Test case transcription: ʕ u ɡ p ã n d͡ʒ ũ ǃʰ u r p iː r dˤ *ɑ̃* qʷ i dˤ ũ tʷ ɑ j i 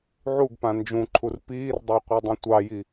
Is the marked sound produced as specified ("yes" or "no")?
no